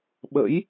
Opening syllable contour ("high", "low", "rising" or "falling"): rising